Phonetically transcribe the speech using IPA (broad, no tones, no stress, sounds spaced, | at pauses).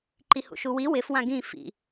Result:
ǃ i h ṵ ʃ u w i w ɪ f w ã ɡ ĩ f ḭ